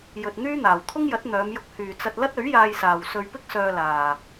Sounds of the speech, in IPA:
jɵ˨t̚ n̪yː˥ n̪aː˨w t̪ʰʊ˥ŋjɐ˨˥t̚ n̪œː˨˧mjʊ˧k̚ hyː˨t͡sɐ˧t̚ lɐ˥t̚ɵ˨˥ɥjaː˧jsaː˨w sɵ˧ɥpɪ˥k̚sœː˧laː˨

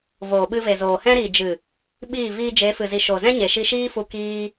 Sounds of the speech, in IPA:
voː˨ɓɨ˧ve˨zoː˨ hɛ̃˧ɾi˨d͡ʒɨ˨ | ɓiː˦˨ viː˧d͡ʒe˨˦fɨ˨zi˨ ʃo˨ zɛ̃˦ɲe˨ ʃi˧ʃiː˦fu˧ kiː˧

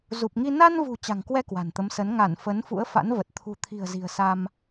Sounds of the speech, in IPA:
zu˨˩p̚ŋi˧ na˧nvṳ˨˩ t͡ɕa̤˨˩ŋkwɛ˧ kwa̤˨˩nt̪ə˨˦msə˨˦n ŋa˧˩n fə˨˦nfṵ˧˥ə̯ fa̰˧˥nvə˨˩t̚ t̪ʰṳ˨˩t̪ʰi̤˨˩ə̯ zi̤˨˩ə̯sa˧m

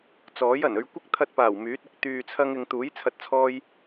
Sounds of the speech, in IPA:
t͡sɔː˨˥jɐ˨˩n ɵ˧ɥkʷɪ˥k̚ t̪ʰɐ˧t̚paː˨˩w myː˨˥t̚ɪ˨˥k̚ t̪yː˨t͡sʰɐ˧ŋɪ˨ŋ t̪uː˨˥jt͡sʰɐ˨t̚t͡sʰɔː˧j

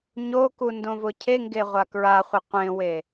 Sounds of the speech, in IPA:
ɲoku ndõvʊcʰeŋɡe ʁʷakɹaχʷɪ qʷẽwe

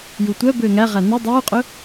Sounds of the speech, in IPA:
jutʷœbøː ŋæʁæ nø dˤuːqʼɵ

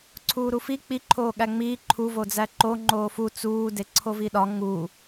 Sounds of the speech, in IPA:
ǀʰuːɾufi k͡pi ǃʰoːɠæŋ͡miː ǃʰu vod͡zæǃo ŋ͡ǃoːfu t͡suː deǀʰoviɗɒ ŋu

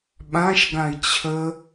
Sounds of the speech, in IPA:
ɓãʃɡãi̯ t͡ɕʰə

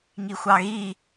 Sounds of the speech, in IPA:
ŋixʷɑɣi

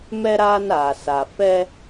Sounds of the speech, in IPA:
mɛ˦ɾaː˦naː˨sa˨ fɛ˦

